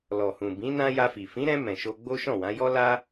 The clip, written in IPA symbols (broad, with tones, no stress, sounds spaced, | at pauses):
l ɔ˨ h ũ˨ b ĩ˨˦ n ã˦ j a˧ f i˨ f ĩ˨˦ ɾ ɛ̃˧ m ɛ̃˨ ʃ o˧ ɡ͡b o˦ ʃ ɔ̃˦˨ w ã˨˦ j ɔ˦ l a˦